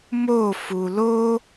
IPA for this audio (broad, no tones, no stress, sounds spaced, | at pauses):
m o f u l o